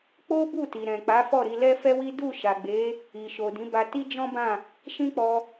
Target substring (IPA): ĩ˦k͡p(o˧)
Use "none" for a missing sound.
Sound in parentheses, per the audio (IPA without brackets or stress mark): ɔ˧